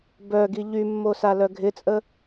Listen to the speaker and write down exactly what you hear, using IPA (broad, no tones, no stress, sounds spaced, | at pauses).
b œ ɡ i ʎ y mː o s a l œ ɡʱ ɪ t͡sʼ ə